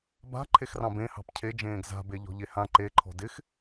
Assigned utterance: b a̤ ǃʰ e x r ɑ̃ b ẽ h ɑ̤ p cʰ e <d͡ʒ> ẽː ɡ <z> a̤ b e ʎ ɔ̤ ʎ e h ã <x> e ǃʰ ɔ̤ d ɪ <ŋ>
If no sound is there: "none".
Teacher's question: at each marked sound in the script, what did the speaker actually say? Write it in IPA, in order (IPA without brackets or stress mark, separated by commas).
d͡ʒ, z, ǃ, x